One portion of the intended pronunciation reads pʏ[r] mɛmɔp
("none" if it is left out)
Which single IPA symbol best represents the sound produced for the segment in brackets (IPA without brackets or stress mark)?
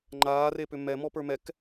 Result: none